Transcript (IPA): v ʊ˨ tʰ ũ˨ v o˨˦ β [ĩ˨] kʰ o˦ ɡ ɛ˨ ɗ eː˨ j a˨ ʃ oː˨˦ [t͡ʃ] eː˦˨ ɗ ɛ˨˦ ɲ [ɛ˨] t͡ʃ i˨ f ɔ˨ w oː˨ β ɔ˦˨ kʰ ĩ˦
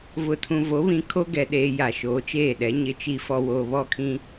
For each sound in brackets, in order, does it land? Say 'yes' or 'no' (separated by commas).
yes, yes, no